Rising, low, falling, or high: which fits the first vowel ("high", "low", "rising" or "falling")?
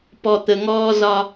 low